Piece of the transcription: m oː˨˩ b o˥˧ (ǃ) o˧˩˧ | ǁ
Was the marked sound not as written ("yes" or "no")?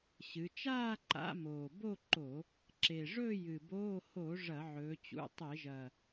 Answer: no